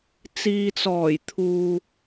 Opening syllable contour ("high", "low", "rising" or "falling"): low